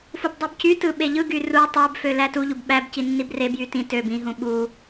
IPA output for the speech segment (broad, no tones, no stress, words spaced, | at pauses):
fubdˤɯbcytɯ ɓeʎɯɡy ru tˤæbfø lætuʎub ɓæbci nːibrebjy tĩ tøb ĩɦũ ɓu